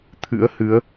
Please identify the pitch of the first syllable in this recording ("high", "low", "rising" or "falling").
rising